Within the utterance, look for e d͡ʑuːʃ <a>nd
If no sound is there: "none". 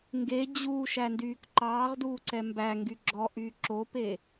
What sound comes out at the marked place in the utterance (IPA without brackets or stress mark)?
æ